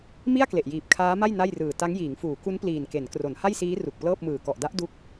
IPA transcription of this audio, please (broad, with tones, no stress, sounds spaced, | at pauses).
m i˥˩ a̯ k l e˨˩ ʔ j iː˨˩ p̚ kʰ aː˦˥ m a˥˩ j n a˥˩ j r ɯː˨˩ t a˦˥ ŋ j iː˩˦ ŋ f uː˩˦ k u˦˥ n p l iː˨˩ n k e˩˦ n k r o˩˦ n h a˥˩ j s iː˦˥ r u˨˩ k̚ p l ɤː˥˩ p̚ m ɯː˨˩ k ɔ˨˩ ʔ d a˦˥ ʔ d u˦˥ k̚